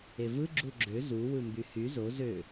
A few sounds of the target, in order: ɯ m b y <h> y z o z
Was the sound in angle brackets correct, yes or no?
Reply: yes